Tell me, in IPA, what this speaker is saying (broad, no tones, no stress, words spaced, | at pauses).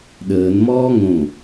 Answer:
ɗəːnmɔː ŋõ